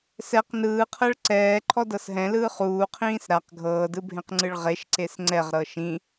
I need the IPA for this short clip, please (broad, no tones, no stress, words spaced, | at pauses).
sɛq nɯːqʰɤɭ ǀɛːǃʰɔdɤs ɦɛ̃lɯː χuːqʰĩːs ɾaq ɡʱɤːdɯbʱẽqŋ͡ǀɯɭ ʁeʃǀes ŋ͡ǀɛʁɾɤ ʃĩ